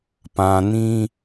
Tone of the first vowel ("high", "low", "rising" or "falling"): low